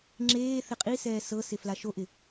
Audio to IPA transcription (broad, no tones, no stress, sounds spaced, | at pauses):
ŋ͡ǁ eː θ ɪ qʼ i s ɛː s ɤ s ɪ f l a ʃ o ʔ ɪ